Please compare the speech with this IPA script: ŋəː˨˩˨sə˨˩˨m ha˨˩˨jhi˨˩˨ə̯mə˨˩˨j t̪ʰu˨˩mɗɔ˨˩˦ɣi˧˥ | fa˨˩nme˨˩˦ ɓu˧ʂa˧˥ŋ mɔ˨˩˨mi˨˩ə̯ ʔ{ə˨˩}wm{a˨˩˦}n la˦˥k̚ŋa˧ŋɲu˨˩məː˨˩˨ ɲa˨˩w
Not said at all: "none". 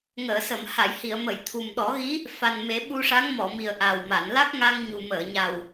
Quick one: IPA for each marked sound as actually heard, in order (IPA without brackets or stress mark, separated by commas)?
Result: a˨˩, a˨˩˨